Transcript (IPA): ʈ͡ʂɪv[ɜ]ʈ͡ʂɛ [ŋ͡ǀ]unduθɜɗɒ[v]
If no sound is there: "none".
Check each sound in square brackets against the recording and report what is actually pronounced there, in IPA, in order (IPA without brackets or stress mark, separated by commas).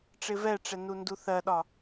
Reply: ɛ, n, none